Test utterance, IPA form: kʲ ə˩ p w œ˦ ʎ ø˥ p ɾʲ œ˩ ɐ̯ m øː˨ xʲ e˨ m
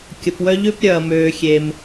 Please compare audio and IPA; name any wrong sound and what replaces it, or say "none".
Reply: none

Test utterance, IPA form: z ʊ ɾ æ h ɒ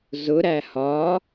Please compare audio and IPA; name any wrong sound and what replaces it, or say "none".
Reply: none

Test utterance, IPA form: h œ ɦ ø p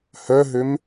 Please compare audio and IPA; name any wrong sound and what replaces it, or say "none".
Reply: p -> m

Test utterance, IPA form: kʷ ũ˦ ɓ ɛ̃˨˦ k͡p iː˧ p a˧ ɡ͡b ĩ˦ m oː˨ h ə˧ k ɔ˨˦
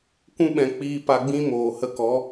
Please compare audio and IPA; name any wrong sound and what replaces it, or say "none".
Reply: none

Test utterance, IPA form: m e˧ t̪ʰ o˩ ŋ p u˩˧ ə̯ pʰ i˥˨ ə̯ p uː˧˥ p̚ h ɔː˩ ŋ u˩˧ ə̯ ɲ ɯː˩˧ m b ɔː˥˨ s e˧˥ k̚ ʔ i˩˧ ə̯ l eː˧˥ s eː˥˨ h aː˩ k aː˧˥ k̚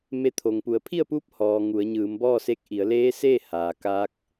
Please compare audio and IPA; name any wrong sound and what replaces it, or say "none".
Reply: none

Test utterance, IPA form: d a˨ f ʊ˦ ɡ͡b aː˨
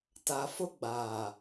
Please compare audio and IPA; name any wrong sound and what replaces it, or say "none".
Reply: d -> t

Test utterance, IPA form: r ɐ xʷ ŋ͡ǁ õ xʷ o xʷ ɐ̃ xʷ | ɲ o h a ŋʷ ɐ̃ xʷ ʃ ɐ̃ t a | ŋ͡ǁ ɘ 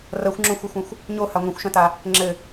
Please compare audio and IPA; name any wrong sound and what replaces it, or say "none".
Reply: none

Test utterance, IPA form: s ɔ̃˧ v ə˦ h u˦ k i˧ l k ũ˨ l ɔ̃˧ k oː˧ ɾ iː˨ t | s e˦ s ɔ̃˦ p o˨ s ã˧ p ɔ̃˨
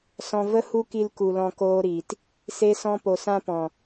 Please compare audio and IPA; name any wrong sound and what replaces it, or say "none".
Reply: ũ˨ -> u˨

